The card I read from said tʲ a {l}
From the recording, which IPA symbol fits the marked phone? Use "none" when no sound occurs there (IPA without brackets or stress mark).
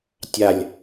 lʲ